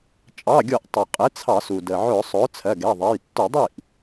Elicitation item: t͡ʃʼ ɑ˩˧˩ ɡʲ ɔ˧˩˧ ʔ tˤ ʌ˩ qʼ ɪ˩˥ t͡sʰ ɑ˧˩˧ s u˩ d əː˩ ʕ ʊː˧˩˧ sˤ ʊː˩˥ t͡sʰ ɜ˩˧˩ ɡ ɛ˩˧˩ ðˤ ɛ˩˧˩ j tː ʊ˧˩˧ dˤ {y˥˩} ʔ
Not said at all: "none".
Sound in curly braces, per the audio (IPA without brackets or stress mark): i˥˩